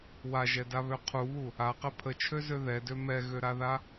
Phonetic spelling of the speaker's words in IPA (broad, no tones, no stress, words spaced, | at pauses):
waʒɛdaβø qʰuβu | aqɛ pʰət͡ʃʰøzø ðɛdø mɛɣøɾaða